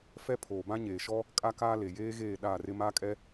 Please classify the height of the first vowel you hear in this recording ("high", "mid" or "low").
mid